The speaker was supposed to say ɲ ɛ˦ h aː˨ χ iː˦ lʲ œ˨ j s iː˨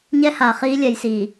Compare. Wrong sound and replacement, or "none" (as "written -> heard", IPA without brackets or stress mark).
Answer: œ˨ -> ɛ˨